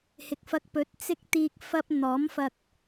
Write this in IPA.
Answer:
h ɪ˨ k̚ f ɐ˧ k̚ p ɵ˨˥ t̚ t͡s ɪ˥ k̚ t̪ iː˧ k̚ f ɐ˥ p̚ n̪ ɔː˨˥ m f ɐ˧ k̚

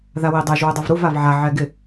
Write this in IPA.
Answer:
ð a w i dˤ ɛ ʒ w ɪ dˤ u v ɾ u v a v ʕ a ʕ ɛ ɡ ɪ

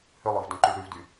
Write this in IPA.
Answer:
h ʏ lˠ œ v d œ̃ ǃ y ɭ ɾ y v d y

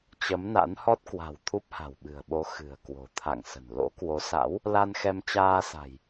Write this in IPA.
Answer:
t͡ɕ ə˨˦ m n a̰˧˥ n h ɔ˦˥ t̚ k w a̤˨˩ w t̪ʰ u˦˥ p̚ h a̤˨˩ w ɓ ɨ̤˨˩ ə̯ ɓ o˨˦ x ɨ̤˨˩ ə̯ k w o̤˨˩ t̪ʰ a̰˧˨ ŋ s ə̤˨˩ n l o̰˧˥ k w o˨˦ s a̰˧˥ w | l a˧ n x ɛ˧ m t͡ɕ aː˧ s a̤˨˩ j

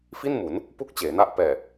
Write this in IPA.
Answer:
f i˥˩ n m u˩˦ n | p u˥˩ k̚ t͡ɕ eː˩˦ n a˦˥ ʔ p ɛː˨˩

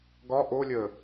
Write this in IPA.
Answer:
ɡ ɒ ʔ o lʲ əː

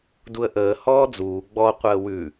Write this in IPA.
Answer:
d u ə̯ ʔ əː h ɔː d͡z uː ɡ͡b ɔ qʷ əː w ʉ

